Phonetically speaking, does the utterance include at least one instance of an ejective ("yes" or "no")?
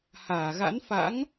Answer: no